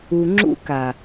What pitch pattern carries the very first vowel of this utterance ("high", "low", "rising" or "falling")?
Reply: low